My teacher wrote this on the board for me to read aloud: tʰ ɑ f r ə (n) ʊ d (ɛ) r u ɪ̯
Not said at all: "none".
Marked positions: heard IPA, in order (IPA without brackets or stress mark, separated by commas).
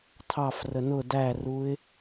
n, æ